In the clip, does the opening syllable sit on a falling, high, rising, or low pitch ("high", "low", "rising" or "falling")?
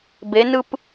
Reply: rising